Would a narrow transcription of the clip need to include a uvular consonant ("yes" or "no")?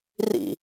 no